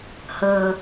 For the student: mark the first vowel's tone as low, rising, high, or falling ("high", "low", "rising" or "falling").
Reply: low